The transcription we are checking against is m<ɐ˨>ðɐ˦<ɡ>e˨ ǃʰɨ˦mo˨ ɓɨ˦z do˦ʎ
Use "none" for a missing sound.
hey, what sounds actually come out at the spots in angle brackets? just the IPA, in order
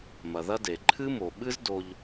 ɐ˨, d

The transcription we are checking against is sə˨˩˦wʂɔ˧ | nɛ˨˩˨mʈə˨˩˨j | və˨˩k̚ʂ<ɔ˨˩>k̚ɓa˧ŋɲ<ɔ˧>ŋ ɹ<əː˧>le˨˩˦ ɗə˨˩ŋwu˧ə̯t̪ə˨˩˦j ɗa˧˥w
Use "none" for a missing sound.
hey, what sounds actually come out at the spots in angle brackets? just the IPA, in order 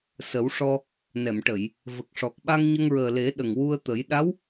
ɔ˨˩, ə˧, əː˨˩

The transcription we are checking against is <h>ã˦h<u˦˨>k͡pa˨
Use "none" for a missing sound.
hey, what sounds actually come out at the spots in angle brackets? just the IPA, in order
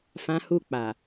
f, u˦˨

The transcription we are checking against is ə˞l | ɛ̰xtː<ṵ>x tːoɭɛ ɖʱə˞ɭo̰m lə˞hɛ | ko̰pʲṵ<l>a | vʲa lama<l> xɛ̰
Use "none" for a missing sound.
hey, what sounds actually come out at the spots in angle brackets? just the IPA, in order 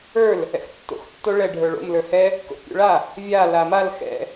o̰, ɭ, l

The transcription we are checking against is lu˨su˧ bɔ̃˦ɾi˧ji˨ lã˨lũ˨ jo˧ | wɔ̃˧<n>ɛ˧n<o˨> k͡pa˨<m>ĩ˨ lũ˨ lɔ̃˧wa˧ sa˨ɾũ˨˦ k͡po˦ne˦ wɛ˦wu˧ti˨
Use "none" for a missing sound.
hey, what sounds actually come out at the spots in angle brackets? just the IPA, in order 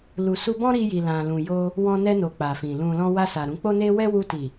n, o˨, f

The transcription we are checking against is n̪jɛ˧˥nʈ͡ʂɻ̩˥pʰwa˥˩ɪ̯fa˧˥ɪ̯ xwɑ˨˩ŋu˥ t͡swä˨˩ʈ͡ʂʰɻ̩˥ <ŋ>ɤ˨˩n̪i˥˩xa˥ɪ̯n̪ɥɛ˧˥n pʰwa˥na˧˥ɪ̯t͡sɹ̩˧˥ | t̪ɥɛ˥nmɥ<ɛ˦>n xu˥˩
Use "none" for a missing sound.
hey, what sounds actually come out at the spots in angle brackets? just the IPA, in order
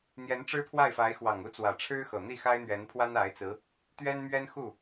x, ɛ˥

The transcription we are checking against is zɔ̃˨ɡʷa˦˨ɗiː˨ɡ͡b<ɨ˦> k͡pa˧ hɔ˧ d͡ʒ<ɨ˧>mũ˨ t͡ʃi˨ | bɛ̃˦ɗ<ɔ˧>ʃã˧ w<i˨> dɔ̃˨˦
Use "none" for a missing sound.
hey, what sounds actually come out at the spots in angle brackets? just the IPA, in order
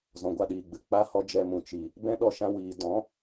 ɨ˨, ɛ˧, ɔ˧, iː˨

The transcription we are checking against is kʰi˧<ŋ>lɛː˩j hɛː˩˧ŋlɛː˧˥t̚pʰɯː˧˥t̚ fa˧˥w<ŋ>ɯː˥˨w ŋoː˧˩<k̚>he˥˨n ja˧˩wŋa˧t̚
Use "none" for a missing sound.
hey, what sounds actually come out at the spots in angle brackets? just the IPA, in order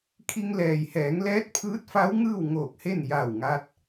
ŋ, ŋ, k̚

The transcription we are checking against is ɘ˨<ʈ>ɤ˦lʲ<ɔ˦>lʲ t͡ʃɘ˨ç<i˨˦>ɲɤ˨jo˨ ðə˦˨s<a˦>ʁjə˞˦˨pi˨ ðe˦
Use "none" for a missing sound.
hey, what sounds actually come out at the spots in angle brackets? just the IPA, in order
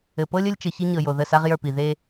p, ə˦, i˦, a˦

